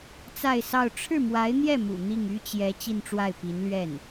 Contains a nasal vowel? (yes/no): no